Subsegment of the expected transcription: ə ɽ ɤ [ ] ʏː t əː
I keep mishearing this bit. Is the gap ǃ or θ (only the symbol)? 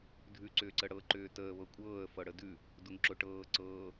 ǃ